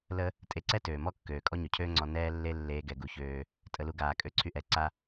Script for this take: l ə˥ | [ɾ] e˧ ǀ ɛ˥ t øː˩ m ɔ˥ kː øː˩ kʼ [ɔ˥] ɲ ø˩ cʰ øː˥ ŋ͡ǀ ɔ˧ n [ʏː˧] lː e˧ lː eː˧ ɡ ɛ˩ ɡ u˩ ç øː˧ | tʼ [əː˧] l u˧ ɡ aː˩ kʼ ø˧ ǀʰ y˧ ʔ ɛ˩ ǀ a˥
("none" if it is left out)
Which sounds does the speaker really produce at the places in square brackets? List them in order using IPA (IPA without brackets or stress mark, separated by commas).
tʼ, ɔ˥, ɛː˧, ə˧